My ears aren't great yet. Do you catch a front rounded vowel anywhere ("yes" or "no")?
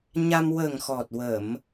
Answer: no